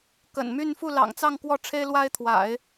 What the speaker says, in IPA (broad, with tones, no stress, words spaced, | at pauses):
kə̰˨˩nmy˥˧n fu˥˩lɑ̰˨˩ŋt͡sɑ˥˧ŋ kwɔ˥˩ʈ͡ʂʰe˥ɪ̯lwa˥ɪ̯t̪ʰwa̰˨˩˦ɪ̯